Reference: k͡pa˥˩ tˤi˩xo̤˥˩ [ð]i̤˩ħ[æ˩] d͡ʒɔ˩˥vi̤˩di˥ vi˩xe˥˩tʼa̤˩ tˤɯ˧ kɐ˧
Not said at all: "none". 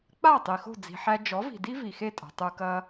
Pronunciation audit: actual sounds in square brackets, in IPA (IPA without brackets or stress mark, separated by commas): d͡z, æ˧